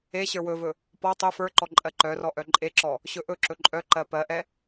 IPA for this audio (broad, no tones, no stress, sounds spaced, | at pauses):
e ɕ ə˞ w ɵ v ɵ | p ɔ tˤ ɵ f ə˞ ǃ ɔ ǃʼ ɜ ǃ œ r ɔ ʔ œ ǃʼ e ǁ ɔ | ɕ ɵ ʔ ɵ ǁ ɵ ǃʼ œ ǃ ɜ p ɜ ʔ ɛ